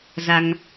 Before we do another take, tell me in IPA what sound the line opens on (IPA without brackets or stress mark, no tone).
z